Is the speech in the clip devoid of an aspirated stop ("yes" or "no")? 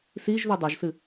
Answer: yes